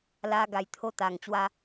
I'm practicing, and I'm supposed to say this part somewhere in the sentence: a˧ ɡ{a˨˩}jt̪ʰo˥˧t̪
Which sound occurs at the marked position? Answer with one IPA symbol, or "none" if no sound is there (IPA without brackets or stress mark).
a˨˩